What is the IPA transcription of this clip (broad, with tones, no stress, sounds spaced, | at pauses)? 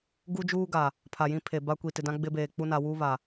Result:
ɡ u˦ d͡ʒ uː˦ ɡ a˨ | pʰ a˨ j ĩ˦ pʰ e˨ b a˦ kʷ i˨ t ɪ˨ d ã˦ ɡ͡b ɪ˦ b eː˨ k͡p u˦ n a˨ w uː˦ β a˨